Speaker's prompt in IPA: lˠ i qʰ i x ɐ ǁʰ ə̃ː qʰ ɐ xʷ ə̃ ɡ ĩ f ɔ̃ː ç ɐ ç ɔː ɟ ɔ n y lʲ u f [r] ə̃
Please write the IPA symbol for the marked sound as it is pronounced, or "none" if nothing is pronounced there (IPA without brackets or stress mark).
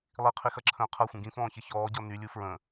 ɹ